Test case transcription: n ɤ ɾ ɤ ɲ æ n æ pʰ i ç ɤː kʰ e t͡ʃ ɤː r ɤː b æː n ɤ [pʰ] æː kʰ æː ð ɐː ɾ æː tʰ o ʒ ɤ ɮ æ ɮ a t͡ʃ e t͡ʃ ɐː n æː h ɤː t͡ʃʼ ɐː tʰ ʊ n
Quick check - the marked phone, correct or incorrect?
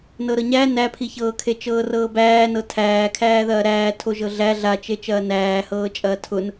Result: incorrect